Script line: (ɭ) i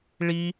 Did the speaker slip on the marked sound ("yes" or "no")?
no